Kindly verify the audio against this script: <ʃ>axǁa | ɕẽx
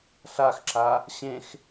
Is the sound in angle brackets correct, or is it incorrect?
incorrect